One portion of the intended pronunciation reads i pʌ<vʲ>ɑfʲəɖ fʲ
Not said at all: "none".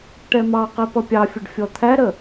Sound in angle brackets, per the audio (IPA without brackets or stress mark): pʲ